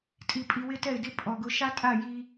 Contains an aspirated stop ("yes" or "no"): no